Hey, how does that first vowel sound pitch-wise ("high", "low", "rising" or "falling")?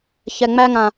low